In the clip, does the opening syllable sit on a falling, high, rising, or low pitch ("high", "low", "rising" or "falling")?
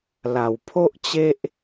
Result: low